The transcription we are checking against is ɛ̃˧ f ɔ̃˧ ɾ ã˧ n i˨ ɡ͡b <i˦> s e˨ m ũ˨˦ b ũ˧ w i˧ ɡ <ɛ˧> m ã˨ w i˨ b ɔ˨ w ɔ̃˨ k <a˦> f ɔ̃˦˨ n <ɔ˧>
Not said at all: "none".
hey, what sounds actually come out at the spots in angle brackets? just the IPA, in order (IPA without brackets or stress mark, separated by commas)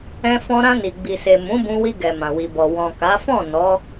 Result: i˨, ɛ˨, a˨˦, ɔ˨˦